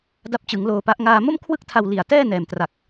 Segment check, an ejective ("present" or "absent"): absent